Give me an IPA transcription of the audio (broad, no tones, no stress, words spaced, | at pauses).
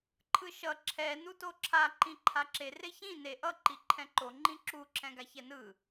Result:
ǃʰɯʃʌ ǁʰɛ nutoǁʰa ǃĩǃʰaǁe reçĩ ne ʔʌ ǃiǃʰɛ̃ǃo ŋ͡ǃĩǁu ǁʰɛ̃ɡaçɛnɯ